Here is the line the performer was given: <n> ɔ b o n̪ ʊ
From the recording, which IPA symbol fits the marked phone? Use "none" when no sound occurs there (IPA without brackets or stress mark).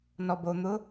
n